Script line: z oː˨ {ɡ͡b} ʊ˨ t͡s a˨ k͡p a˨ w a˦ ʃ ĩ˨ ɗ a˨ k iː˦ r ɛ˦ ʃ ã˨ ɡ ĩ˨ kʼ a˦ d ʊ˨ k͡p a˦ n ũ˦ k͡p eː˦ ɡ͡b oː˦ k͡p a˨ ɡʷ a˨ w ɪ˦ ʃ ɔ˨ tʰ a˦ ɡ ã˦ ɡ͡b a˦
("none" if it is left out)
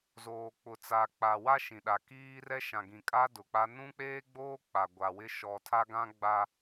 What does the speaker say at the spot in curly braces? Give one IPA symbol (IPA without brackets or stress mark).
k͡p